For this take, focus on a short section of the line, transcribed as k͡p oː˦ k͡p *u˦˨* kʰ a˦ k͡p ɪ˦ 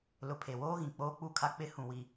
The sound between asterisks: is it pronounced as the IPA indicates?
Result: yes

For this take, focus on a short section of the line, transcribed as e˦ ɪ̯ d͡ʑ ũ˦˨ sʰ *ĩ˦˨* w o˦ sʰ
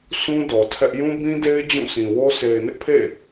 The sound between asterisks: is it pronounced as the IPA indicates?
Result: no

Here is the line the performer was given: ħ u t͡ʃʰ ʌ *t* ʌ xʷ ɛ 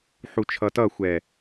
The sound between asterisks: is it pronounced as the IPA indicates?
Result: yes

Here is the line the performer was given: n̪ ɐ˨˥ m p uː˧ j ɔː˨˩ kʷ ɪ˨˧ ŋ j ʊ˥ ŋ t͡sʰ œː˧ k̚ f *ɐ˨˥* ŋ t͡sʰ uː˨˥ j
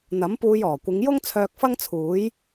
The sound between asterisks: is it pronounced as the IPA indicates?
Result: no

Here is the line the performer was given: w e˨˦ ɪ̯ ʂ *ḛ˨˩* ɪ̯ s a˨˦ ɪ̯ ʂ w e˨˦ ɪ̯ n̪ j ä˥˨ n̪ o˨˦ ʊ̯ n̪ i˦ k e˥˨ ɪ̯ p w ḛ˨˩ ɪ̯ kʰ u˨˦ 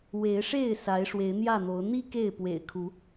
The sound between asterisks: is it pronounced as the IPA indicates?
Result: no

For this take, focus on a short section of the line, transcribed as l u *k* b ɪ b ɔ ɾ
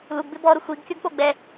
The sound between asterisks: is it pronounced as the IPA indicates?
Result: no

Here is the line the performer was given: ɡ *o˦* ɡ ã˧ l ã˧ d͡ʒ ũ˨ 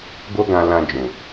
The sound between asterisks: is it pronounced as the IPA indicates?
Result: yes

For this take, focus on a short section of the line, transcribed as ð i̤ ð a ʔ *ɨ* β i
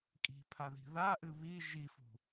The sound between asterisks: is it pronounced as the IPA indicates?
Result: yes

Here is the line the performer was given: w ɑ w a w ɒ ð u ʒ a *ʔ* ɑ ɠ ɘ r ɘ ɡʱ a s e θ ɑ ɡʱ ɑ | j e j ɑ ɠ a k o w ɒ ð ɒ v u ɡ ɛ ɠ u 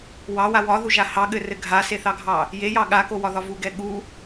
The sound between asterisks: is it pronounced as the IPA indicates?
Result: no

